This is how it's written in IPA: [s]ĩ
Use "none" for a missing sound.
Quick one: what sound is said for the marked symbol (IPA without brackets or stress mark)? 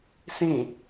s